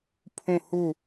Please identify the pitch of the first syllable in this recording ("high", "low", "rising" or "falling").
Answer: falling